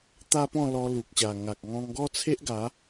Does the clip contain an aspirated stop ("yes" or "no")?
yes